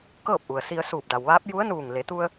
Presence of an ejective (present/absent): absent